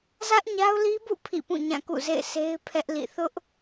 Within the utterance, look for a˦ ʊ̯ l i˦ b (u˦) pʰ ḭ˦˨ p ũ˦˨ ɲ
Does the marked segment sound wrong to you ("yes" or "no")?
yes